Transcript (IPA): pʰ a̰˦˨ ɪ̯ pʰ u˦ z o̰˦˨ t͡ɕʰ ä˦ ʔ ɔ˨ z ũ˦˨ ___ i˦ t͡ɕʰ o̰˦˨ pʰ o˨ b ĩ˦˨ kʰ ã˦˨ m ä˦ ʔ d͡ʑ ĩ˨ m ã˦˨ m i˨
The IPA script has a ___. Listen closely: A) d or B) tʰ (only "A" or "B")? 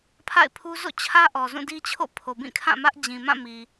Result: A